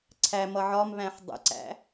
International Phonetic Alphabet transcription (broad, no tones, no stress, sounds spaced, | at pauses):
ǀʰ æ m ʌ ʕ ɒ m β æ̃ ħ dˤ ə̰ ǀ æ̰